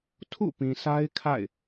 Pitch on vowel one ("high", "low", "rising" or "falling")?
falling